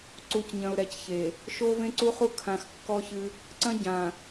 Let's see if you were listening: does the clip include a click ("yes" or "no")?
yes